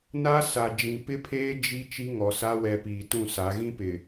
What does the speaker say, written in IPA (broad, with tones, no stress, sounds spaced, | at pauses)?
n a˦ s a˨ d͡ʒ ĩ˨ p ɪ˦ pʰ eː˦ d͡ʒ i˦ t͡ʃ i˦ ŋ ɔ˨ s a˦ w ɛ˨ p iː˨ t ũ˦˨ s a˨˦ ɣ ĩ˦ p ɪ˨